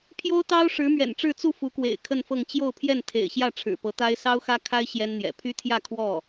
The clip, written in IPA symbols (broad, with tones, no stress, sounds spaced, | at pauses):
pʰ j o˥ ʊ̯ t̪ ɑ˥ ʊ̯ ʂ ɻ̩˧˥ m ɥ ɛ̰˨˩ n ʈ͡ʂ ɻ̩˥˧ t͡s u˥˩ f u˧˥ k w ḛ˨˩ ɪ̯ kʰ ə˥˧ n f ɤ˥˧ ŋ t͡ɕ j o˥˧ ʊ̯ pʰ j ɛ˥˩ n t̪ʰ ḛ˨˩ ɪ̯ ɕ j ä˥˩ ʈ͡ʂʰ ɻ̩˨˩ p ɤ˧˥ t̪ a˥ ɪ̯ s ɑ˥ ʊ̯ x ä˥ kʰ a˥ ɪ̯ ɕ j ɛ˥ n n̪ j ɛ̰˨˩ pʰ y˥ t̪ʰ j ä˥˧ kʰ w ɔ˥˩